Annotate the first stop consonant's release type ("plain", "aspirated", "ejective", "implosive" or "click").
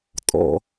ejective